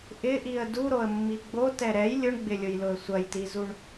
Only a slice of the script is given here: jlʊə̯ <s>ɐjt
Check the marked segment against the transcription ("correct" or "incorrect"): incorrect